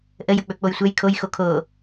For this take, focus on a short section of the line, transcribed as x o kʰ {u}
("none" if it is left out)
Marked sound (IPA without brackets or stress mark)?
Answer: o